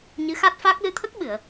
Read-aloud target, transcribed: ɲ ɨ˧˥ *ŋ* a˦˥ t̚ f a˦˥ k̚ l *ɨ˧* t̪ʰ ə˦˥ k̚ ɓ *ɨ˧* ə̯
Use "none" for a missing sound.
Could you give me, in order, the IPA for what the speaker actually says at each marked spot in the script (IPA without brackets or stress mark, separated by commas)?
x, ɨ˧, ɨ˨˩˨